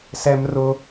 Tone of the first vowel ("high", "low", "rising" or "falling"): high